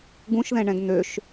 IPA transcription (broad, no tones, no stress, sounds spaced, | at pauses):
ɡ ũ ʃ ð ɛ̃ ɳ ɛ̃ ɡ n̪ ø ʃ